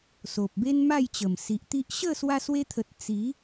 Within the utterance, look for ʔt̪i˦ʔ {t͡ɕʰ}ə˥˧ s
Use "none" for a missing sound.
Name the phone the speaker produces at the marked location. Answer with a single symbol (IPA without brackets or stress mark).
ɕ